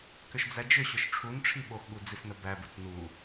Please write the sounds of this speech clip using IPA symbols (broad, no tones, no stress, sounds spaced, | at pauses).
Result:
k ʏ ʃ d͡z æ d͡ʒ ʏ ɕ ʏ ʃ ʈ͡ʂʰ u n ʈ͡ʂʰ i ɓ o x ɠ u d͡z i s n ə b æ b u t͡s n u